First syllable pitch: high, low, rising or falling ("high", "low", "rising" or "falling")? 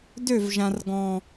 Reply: falling